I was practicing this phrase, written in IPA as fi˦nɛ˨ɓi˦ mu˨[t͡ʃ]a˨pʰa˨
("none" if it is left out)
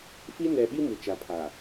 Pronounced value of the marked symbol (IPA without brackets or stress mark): t͡ʃ